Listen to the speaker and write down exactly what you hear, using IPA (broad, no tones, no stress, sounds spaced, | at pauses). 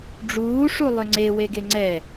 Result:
ɖ͡ʐ uː ʂ u lˠ ʏ ŋ͡ǀ e w e ɡ e ŋ͡ǀ ɛ